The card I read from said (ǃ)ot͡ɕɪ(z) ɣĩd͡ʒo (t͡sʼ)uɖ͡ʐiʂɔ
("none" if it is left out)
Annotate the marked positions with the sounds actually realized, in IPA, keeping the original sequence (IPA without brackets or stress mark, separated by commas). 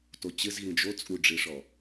t, z, t͡sʼ